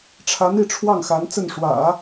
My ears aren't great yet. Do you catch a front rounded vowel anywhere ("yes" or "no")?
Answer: no